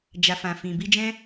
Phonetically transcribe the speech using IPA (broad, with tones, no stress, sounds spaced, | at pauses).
d͡ʒ a˨ f ã˨ f ĩ˨ b i˧ d͡ʒ ɛ̃˦